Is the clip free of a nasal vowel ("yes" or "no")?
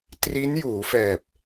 yes